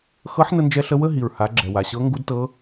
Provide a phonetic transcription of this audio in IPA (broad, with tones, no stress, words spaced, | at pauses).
xɤ˧˥ħnə˧nd͡ʒɛ˧ɬə˧ wə˥ɦi˩ɹha˩˧ ɡ͡ǁɛ˩wa˩ɕɤ˧˥ ŋɡu˧˥dtɤ˧˥